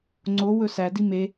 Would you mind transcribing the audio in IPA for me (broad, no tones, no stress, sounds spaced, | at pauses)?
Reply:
ŋ͡ǀ o w ɵ s æ d i m e